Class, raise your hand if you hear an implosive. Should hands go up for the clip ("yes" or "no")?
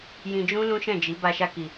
no